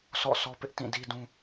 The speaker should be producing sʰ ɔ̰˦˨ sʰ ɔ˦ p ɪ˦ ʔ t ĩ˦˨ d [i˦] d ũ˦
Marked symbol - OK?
yes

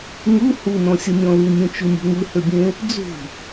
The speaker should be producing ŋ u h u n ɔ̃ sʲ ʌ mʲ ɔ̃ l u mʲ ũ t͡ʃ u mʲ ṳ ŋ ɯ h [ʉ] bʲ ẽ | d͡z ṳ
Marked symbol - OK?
no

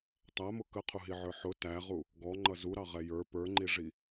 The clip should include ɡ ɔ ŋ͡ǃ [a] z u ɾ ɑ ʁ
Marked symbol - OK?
no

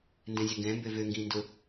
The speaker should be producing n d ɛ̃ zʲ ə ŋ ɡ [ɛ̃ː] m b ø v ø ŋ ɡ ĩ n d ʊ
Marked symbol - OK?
no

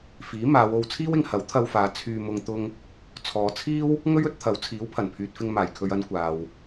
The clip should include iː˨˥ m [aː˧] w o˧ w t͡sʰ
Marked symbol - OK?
no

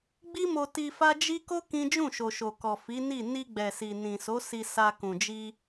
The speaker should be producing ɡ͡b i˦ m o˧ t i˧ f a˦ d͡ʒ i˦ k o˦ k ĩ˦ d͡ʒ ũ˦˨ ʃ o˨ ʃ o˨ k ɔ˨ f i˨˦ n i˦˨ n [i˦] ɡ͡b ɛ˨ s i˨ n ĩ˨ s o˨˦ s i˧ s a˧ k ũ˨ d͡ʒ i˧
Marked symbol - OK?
no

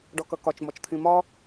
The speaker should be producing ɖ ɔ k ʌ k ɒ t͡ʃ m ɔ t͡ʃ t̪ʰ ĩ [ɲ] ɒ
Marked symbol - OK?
no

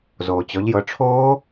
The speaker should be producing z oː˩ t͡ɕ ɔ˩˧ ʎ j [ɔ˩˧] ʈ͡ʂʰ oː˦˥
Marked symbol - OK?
no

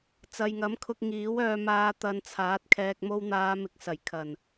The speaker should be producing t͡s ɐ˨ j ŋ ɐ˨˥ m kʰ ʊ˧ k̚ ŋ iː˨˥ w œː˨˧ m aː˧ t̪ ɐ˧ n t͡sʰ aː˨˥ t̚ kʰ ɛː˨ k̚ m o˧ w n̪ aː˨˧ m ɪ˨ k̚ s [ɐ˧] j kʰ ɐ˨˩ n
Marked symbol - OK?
no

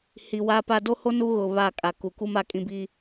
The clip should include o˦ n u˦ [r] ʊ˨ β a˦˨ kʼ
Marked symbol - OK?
no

